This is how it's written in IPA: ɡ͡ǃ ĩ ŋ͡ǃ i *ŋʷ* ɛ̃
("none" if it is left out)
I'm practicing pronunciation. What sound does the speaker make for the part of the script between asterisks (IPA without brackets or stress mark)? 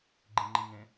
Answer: ŋ